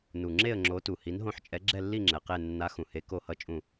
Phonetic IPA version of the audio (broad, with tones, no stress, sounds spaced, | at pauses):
n u˨˩ ŋ͡ǁ e˦˨ ə̯ ŋ͡ǁ o˨˥ t u˨˩ h i˨˥ n ɦ õ˦˨ ħ t͡ʃʼ ɛ˨˥ ɡ͡ǁ ɛ˦˨ lː i˦˨ ŋ͡ǁ ɛ˨˩ q e˦˨ nː a˨˥ x ũ˨˩ h e˨˥ k o˦˨ h ʌ˦˥ t͡ʃʼ ũ˦˨